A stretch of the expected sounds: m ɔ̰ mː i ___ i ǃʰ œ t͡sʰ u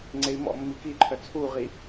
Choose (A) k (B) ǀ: A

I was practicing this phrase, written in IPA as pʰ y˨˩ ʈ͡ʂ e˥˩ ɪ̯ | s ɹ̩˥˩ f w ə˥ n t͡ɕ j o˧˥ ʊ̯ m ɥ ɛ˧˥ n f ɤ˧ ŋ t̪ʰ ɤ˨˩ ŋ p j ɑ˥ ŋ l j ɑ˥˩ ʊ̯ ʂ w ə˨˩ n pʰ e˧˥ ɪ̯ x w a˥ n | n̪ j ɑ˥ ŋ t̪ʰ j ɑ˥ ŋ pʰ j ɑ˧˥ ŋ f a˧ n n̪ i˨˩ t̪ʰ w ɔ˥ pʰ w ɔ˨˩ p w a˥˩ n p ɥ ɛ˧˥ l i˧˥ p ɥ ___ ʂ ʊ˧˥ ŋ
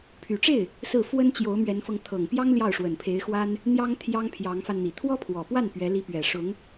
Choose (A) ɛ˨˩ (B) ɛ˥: A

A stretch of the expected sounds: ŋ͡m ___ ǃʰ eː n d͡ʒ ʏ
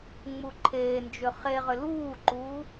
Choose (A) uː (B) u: B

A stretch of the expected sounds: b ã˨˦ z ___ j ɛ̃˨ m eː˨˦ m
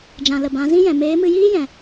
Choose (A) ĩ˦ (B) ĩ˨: A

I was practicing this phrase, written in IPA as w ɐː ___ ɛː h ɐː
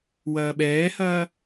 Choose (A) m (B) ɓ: B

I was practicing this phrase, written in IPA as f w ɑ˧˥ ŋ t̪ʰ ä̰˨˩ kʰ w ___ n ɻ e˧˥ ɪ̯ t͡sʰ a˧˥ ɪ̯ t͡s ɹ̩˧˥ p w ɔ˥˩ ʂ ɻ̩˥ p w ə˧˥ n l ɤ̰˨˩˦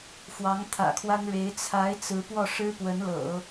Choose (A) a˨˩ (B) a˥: B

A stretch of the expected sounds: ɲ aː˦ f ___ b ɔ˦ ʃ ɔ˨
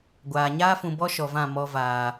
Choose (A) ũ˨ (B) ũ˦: A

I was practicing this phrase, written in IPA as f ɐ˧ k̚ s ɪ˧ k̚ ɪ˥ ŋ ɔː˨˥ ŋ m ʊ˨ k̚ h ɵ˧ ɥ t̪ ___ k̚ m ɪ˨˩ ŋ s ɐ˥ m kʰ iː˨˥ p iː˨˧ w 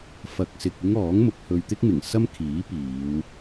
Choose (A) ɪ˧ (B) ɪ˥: B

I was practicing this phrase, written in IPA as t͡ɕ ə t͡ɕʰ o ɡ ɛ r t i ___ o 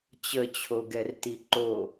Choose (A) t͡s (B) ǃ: B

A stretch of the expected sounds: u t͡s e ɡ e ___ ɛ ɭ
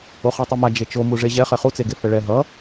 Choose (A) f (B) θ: A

